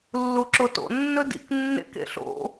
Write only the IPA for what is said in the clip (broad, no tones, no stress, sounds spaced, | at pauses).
lː u ǁ o t o̰ nː ɵ d ḭ k nː ḛ k ḛ ɬ o̰